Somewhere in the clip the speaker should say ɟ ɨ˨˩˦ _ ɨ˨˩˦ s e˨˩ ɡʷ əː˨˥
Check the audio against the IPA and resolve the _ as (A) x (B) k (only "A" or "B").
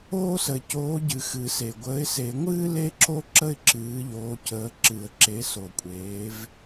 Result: A